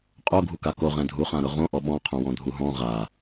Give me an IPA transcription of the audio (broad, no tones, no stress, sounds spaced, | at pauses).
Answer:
qʼ o ɡʱ u k a k o ʁ ɛ̃ dʱ u χ ã ɾ ʊ ʁ õ ʔ ɔ ɓ ɔ̃ qʰ õ w ɔ̃ dʱ u ɦ ɔ̃ ʁ a